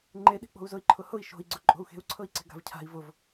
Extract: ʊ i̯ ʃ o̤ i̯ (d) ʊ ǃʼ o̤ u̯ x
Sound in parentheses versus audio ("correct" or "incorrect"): incorrect